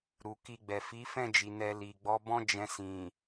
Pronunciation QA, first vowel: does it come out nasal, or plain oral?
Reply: oral